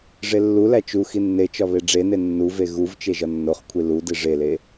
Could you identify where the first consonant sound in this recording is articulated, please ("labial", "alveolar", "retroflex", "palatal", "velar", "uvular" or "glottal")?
retroflex